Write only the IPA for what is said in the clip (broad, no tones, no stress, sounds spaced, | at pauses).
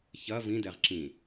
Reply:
ç ɐ v ĩ d ɛ ʁ ǁ ĩ